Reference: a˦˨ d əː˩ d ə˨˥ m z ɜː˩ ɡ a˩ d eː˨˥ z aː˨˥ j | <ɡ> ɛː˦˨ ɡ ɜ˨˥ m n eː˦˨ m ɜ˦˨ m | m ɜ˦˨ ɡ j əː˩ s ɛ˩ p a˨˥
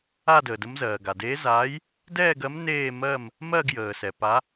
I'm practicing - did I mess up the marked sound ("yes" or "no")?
yes